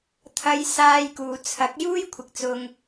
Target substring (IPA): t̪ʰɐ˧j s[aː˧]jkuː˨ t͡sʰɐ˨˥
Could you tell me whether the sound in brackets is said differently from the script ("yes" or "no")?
no